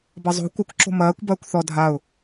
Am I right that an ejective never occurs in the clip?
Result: yes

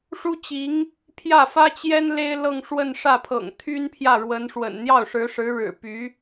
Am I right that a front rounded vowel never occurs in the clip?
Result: no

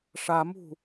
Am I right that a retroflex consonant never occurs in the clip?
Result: no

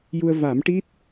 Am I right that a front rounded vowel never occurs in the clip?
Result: yes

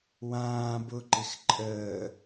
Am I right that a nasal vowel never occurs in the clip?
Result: no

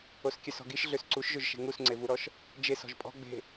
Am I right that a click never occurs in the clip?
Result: no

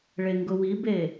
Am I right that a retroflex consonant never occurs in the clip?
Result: no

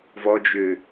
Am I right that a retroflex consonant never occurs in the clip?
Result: yes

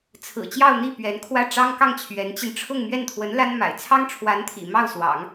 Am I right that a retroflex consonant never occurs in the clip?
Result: no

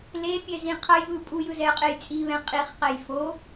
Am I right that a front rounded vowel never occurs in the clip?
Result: yes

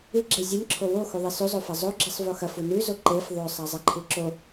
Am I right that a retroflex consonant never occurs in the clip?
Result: yes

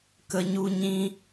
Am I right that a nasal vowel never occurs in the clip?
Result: no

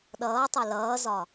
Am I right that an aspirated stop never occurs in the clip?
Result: yes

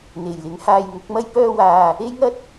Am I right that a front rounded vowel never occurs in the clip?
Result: no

